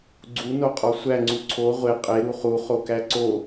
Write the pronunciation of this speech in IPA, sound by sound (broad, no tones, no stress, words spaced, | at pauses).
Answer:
ɡ͡ǀu noqʼɒsʷæ ŋ͡ǀuǀʰo ʁʷe qʼe ɾuχu χokæǀo